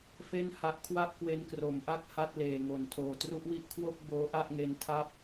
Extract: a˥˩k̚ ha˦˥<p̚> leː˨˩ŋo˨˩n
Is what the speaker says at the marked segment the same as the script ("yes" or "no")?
no